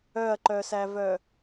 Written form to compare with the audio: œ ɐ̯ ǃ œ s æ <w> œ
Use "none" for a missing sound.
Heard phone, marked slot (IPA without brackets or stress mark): v